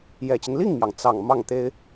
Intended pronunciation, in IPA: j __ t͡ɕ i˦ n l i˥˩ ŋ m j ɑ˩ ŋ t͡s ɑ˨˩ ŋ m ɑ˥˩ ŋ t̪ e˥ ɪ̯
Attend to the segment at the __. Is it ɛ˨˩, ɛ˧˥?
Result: ɛ˨˩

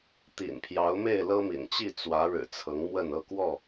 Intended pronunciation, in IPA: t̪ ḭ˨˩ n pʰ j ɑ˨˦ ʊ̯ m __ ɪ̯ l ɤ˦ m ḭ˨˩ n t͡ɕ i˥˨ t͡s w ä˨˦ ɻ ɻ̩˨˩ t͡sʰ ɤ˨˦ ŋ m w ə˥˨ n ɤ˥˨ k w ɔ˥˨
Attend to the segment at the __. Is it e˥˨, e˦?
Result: e˥˨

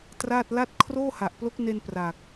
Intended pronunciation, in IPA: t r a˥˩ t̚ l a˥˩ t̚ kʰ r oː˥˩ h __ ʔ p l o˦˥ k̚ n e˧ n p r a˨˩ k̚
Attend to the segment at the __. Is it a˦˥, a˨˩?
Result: a˨˩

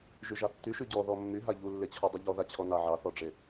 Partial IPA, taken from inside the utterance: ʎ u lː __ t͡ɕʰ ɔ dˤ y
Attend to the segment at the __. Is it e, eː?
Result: e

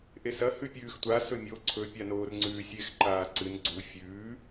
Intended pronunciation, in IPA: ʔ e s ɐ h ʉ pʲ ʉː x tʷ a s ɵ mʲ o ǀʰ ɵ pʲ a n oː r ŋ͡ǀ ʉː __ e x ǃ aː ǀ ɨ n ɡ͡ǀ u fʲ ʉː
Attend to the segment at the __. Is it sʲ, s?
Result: sʲ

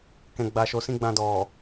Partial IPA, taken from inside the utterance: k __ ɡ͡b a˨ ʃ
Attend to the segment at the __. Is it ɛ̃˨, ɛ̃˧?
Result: ɛ̃˨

